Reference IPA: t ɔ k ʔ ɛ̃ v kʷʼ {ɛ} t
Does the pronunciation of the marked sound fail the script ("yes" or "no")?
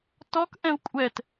no